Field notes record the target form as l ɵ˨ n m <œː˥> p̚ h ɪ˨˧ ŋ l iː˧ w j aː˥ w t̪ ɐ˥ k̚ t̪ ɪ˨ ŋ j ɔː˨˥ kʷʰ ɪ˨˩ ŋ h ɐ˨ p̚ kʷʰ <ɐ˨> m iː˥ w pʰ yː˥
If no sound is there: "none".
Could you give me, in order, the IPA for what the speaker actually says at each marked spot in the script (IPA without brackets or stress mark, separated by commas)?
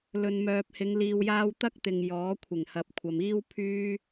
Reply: œː˨, ɐ˨